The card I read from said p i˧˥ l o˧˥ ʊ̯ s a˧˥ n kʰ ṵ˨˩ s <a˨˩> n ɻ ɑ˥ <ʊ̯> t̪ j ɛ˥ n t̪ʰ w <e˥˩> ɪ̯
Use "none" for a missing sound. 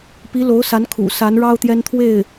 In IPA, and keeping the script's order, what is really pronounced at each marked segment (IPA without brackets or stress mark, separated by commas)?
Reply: a˧˥, ʊ̯, e˥˩